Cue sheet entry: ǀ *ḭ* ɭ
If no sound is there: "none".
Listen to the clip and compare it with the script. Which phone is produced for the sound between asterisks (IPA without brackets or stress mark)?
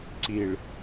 i